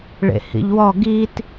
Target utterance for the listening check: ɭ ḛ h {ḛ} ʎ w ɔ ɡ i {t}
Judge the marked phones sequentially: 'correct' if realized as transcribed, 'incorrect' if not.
incorrect: ḭ, correct

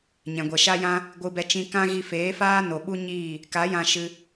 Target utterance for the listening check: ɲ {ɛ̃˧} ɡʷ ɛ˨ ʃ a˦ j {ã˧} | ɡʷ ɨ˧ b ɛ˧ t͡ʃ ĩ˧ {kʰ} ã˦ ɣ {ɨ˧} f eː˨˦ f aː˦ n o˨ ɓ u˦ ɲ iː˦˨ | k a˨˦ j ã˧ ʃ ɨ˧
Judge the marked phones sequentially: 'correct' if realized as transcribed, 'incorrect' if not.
incorrect: ɛ̃˨, incorrect: ã˦, incorrect: k, incorrect: i˧

